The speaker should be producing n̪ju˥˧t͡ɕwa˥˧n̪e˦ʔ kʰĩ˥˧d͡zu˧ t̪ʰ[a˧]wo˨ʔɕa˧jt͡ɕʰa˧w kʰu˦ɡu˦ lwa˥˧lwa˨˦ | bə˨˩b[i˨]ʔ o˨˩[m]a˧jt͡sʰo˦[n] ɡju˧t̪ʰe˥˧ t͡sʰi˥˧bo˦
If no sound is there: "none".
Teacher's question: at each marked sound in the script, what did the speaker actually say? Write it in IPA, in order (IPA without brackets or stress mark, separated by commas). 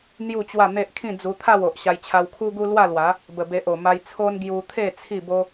a˥˧, e˨, m, n